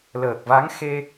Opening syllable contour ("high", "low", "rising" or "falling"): low